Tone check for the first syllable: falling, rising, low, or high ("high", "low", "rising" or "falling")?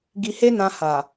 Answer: low